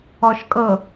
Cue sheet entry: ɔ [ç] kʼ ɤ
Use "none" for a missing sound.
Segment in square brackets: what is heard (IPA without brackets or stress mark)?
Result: ʃ